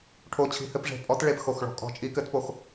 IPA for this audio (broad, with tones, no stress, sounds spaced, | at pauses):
ʈʰ o˧˩ t͡ɕʰ i̤˨˥ h ɘ˨˥ p ʐ e̤˨˥ pʼ ɔ˨˥ t ɭ e˧˩ p x o˧˩ x ɭ ɔ̤˧˩ kʼ ɔ̤˨˥ t͡ʃʼ i˨˥ k ɘ˨˥ t p o˧˩ x